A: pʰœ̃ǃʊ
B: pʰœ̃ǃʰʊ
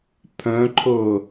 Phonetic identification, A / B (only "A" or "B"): B